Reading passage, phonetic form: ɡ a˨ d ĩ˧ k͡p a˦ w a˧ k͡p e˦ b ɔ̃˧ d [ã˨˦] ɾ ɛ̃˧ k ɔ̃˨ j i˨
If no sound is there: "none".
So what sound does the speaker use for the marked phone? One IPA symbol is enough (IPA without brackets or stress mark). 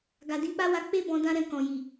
ã˦